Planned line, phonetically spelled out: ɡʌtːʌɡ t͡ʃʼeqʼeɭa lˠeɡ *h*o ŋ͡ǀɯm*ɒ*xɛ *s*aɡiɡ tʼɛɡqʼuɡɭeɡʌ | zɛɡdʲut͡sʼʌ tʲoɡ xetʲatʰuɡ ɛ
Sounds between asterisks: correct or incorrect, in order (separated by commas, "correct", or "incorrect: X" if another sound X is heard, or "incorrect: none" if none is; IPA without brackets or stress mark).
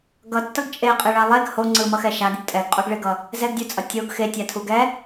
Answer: correct, incorrect: ʌ, incorrect: ʃ